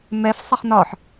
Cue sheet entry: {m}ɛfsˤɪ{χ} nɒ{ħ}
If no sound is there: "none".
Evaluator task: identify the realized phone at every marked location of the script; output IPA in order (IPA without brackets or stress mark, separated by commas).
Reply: m, χ, ħ